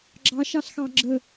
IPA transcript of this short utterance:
ɡ͡ǁɑʃɑɬxɑ ɡ͡ǁə

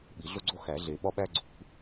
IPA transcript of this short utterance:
ɓi˨˩˦ɮo˥ɡ͡ǀo˥ xæ˨˩˦ɮe˨˩˦ ɓɒ˥ɓæ˥ ɡ͡ǀṳ˨˩˦

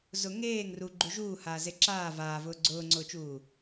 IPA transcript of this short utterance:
zʊ ŋeːŋ ruɡ͡ǃu ʒuːhaːze ǁaː vaːvʊː ɡ͡ǀʊːŋ͡ǀʊːt͡ʃuː

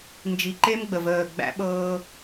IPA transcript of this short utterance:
nd͡ʒi˨ǃe˦mɡ͡bə˨v əː˦˨ ɡ͡bæ̰˦ɓɤː˦

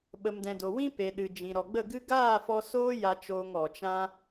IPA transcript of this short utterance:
ɓə˨mdɛ̃˨do˨wĩ˦ pe˨ɗɨ˨d͡ʒĩ˨ ɾɔ˨ɡ͡bə˦˨ɡɨ˦ ɡaː˦˨fɔ˧ soː˦ ja˧t͡ʃoː˧ŋ ɔ˨t͡ʃã˦

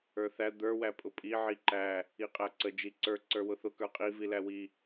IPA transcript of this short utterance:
ə˞θæ d̪ə˞ wæpʼʊpʼi ʕiǃæ | iqʼæǀə d͡ʒiǀə˞ ǀə˞wʊθʊ kə˞qʼi vilæwi

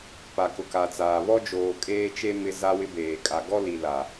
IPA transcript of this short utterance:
pa˨kʊ˨ka˨t͡saː˨ βɔ˦d͡ʒoː˨ kʼeː˦t͡ʃe˦ mɪ˦ za˦wɪ˦beː˨ kʼa˨ɡɔ˦li˨ la˨

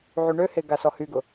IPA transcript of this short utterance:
ʕyɳøhe ɡasɔhyɡʊ

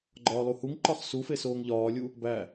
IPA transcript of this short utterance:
ɡ͡ǃɒːlˠuhuŋǃɒχ sufe soːŋʎɒːlʲu | bæ

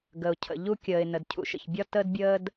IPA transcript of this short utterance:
ɡə˩ʊ̯cʰə̰˩ ʎu˥kʲəː˩ɪ̯ nə˩dcʰṵ˩ʃə̰˩çbʲɒ˥ təː˥dbʲəː˥d

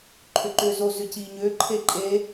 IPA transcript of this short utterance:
ǃʰʏǃʏːzo zʏciːɲʏː ǃʰeǃʼe

